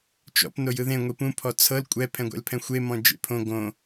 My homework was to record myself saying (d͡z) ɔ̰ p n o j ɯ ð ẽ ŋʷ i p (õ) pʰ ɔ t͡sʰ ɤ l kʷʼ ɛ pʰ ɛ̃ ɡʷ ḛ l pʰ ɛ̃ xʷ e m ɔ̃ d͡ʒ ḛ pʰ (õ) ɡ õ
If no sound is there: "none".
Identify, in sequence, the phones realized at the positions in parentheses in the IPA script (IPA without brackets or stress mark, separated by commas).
t͡ʃ, ũ, õ